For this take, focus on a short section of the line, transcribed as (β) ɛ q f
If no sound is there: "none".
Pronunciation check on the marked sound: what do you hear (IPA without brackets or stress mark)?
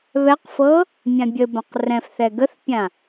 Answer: β